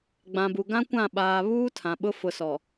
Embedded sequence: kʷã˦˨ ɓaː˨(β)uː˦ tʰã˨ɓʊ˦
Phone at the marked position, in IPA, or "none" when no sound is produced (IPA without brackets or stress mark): β